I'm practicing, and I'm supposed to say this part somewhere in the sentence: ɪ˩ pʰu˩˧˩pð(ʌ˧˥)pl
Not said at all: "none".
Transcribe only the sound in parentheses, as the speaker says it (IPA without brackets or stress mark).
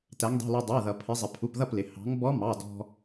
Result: ʌ˥˩